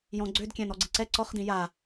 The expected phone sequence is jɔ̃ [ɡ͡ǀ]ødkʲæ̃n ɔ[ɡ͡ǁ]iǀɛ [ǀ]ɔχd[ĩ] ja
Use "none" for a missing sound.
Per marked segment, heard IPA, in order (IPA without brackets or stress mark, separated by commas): ɡ͡ǀ, ɡ͡ǀ, ǀ, ĩ